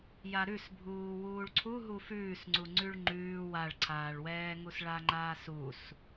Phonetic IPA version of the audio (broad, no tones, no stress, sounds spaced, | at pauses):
j a ɾ ʉ s bʱ uː w uː ɭ ǀʰ u ɦ u f ʉː s ŋ͡ǀ u ŋ͡ǀ ʉ ɭ ŋ͡ǃ ʉː w a ɭ ǀʰ aː ɭ w ɛː ŋ u s ɭ a ŋ͡ǃ aː s u s